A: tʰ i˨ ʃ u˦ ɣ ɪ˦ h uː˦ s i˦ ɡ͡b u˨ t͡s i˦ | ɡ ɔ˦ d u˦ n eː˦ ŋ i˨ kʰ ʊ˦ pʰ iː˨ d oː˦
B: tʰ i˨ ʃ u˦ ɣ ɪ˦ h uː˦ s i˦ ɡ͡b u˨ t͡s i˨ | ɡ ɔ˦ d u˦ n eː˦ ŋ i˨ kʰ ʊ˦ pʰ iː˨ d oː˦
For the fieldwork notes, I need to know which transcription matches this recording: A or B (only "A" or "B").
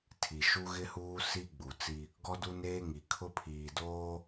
A